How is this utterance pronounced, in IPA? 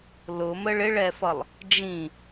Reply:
l ʊ m ə ɭ ɪ ɭ ɛ f ʌ lˠ | d͡ʒ ĩ

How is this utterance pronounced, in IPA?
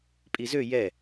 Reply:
pʼ i z ø j ɛ

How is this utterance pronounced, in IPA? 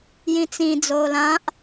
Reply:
j ĩ t͡s ĩ d͡z oː l ã ʔ

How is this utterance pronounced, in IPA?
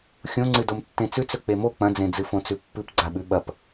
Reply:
xʲ õ ŋ͡ǀ ɨ d o m tː ẽ t͡s ʉ t͡s ɵ k͡p e m o k͡p ɐ̃ d͡z ẽ d͡z ɨ f õ t͡s ʉ pː ɨ p ɡ͡ǀ a ɓ ʉ ɓ ɐ p

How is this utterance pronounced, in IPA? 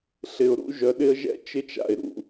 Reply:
ɬ ɪ˨ ʊ̯ ɾ ṵ˦ ʒ œ˨ ɗ ɪ˦ ə̯ ʒ ɛ̰˦ t͡ʃ ɪ˦ t͡ʃ a̰˨ ɪ̯ ɾ ṵ˨

